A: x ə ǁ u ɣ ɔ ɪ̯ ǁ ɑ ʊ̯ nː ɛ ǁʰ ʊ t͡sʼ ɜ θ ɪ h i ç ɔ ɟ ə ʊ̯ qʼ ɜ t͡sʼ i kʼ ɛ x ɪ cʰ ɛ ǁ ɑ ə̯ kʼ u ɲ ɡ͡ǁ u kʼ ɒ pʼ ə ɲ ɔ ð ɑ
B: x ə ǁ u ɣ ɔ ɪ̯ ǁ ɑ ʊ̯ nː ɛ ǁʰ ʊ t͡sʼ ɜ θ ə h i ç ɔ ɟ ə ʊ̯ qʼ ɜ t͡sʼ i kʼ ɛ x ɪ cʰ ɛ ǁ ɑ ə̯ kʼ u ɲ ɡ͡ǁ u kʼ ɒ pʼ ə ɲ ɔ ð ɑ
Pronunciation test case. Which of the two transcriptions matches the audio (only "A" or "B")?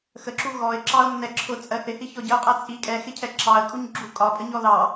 A